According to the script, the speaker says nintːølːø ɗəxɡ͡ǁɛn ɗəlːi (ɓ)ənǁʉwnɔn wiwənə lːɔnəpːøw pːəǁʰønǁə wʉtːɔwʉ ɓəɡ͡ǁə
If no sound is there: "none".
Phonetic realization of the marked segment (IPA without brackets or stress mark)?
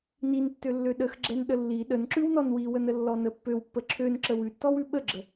ɗ